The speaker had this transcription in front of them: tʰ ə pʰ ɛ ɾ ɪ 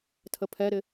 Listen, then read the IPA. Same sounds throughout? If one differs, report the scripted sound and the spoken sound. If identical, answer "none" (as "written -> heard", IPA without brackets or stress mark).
none